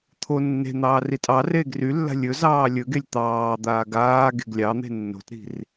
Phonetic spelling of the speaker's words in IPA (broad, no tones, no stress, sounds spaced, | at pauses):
t̪ʰ o nː e̤ n̪ ɑː r i tʼ ɑ r eː ɡ r y lː a̤ lʲ ɵ z ɑː lʲ ɵ ɡ e lʲ t̪ ɑː d̪ aː ɡ aː ɡ e̤ ɡ lʲ ɑ n̪ e̤ nː o̤ t ɾ i̤ r